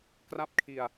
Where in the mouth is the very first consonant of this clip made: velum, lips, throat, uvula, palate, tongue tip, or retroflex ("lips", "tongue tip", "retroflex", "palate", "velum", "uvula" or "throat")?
velum